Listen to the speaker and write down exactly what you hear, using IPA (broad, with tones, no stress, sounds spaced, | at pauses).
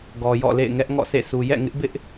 ɡ ɔ˨ j ɔ̰˦˨ l ḛ˦˨ ɪ̯ ŋ ɛ˦ ʔ ŋ ɔ̰˦˨ s ḛ˦˨ s u˨ j ɛ̰˦˨ ŋ ɪ˦ ʔ b ɪ˦ ʔ